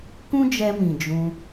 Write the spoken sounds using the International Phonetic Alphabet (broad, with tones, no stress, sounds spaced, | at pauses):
k ũ˦ d͡ʒ ɛ˧ m ĩ˨ d͡ʒ ũ˧